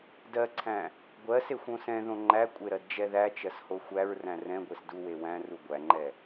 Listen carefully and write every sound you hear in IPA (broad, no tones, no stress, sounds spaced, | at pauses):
d ɜ ǀʰ æ̃ | ɡʷ ɜ s e xʷ õ s ɛ̃ ð õ ŋ͡ǃ æ kʷʼ e ɾ ɜ d d͡ʒ ɛ ð æ t͡ʃ ɜ s h o xʷ æ ɹ r æ̃ r ɛ̃ ɡʷ e s d u w e w æ̃ r u ɡʷ æ ŋ͡ǃ ɛ